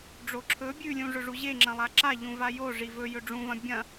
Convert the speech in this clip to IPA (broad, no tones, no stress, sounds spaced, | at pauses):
ɖ͡ʐ o ǁʰ ɵ bʲ ʉ lʲ ũ ʐ ɵ ʐ u ʑ e ŋ͡ǁ ɐ̃ lˠ a ǁ a ʎ ũ v a j o ʐ i v ɵ j ɵ ɖ͡ʐ ũ v ɐ̃ bʲ ɐ̃